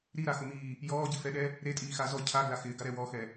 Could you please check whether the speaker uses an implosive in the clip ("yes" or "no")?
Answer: yes